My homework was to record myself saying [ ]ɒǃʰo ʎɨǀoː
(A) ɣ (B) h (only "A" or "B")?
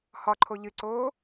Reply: B